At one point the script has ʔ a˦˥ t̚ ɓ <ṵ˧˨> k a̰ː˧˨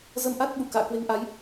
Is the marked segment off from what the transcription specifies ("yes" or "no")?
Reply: no